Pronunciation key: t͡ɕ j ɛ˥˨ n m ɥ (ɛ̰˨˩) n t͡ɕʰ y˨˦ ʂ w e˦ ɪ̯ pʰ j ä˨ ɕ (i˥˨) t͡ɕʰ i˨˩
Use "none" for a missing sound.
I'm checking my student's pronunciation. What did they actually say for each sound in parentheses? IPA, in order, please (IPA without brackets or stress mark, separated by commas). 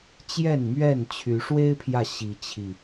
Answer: ɛ˥˨, i˨˦